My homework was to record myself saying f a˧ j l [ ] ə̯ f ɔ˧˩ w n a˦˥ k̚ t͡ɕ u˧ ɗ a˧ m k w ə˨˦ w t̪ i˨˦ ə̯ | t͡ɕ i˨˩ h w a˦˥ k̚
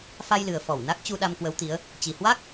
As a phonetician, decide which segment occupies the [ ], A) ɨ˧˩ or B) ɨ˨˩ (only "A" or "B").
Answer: B